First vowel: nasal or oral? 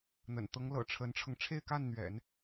oral